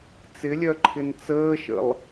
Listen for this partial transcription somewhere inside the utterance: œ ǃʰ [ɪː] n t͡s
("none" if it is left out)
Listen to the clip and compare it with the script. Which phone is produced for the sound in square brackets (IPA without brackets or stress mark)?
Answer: ɪ